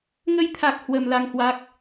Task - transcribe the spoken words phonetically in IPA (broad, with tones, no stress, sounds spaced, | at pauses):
ŋ ə˧ j t̪ʰ a˨˩ k̚ h w ə˨˩ m l a˧ ŋ h w a˦˥ k̚